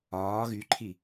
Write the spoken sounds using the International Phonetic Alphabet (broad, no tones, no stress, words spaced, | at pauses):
ɒː ɣyǃʰi